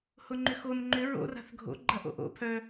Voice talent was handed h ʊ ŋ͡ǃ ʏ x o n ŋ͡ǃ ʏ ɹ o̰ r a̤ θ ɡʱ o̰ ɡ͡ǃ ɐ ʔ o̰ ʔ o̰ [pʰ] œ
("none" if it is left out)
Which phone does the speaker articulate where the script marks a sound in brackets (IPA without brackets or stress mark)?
pʰ